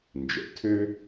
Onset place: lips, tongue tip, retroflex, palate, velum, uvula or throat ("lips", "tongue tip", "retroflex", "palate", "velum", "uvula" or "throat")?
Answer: tongue tip